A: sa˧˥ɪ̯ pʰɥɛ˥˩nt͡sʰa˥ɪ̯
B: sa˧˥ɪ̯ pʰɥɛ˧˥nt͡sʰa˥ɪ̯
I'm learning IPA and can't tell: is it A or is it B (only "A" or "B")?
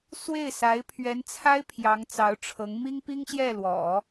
B